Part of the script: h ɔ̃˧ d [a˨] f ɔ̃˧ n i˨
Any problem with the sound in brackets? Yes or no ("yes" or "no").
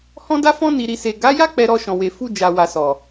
yes